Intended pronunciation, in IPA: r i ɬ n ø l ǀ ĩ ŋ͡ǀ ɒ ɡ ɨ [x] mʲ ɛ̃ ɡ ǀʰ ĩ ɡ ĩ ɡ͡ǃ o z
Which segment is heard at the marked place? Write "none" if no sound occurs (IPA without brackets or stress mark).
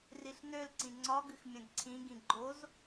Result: x